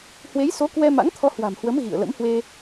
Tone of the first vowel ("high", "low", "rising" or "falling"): rising